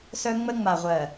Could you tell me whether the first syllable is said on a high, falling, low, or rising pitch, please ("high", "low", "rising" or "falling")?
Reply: high